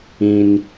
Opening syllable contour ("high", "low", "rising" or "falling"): high